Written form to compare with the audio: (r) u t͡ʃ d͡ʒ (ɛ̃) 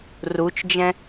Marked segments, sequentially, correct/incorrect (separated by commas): correct, correct